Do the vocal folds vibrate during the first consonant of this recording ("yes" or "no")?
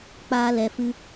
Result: no